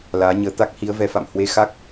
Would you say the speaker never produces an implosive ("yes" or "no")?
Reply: yes